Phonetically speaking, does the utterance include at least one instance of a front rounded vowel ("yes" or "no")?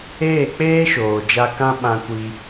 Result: no